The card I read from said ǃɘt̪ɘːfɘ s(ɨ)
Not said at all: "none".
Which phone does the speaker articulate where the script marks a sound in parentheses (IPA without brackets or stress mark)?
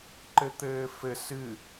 ɨ